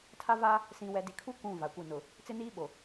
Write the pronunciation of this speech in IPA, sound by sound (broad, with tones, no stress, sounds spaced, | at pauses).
tʰ a˦ v a˦ | s ĩ˨ w ɛ˨ d i˨ kʰ u˦ kʷ ũ˦˨ v a˨ kʷ ɪ˦˨ n ʊ˨ | t͡s ɪ˦ n iː˦ ɓ o˨